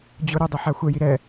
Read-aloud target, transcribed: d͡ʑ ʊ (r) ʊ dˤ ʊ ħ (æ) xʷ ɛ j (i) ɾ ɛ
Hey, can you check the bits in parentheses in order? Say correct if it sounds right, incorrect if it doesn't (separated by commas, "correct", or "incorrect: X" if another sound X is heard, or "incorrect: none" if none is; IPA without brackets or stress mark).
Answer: incorrect: ɾ, incorrect: a, correct